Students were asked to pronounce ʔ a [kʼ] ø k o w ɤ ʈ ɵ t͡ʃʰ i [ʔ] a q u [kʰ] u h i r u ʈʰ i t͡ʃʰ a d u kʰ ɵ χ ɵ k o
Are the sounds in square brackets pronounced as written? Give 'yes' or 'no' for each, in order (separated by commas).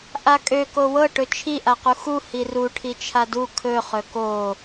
yes, yes, no